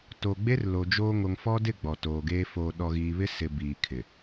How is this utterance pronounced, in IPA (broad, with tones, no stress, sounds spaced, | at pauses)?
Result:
t o˨ ɡ͡b e˦ r l o˨ d͡ʒ oː˦ ŋ o˨ ŋ f ɔ˦ d ɪ˦˨ ɡ͡b ɔ˨ t oː˨ ɡ eː˦ f oː˨ ɗ ɔ˨ ɣ iː˨ β ɪ˦ s ɪ˨ b iː˨ kʰ ɪ˨